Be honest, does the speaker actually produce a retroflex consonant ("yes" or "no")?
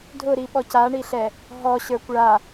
yes